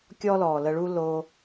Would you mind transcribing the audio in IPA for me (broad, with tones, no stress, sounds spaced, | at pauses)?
kʲ ɔ˦ l ɔː˨ l ə˧ ɭ u˦ l o˧